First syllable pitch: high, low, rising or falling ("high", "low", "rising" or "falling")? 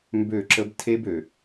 falling